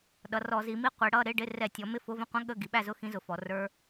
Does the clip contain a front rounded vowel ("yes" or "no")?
no